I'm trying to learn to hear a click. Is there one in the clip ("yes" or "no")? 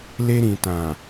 no